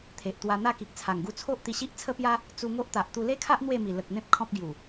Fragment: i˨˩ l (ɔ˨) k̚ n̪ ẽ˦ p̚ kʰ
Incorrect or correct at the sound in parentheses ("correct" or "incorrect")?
incorrect